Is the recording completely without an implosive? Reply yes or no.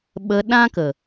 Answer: no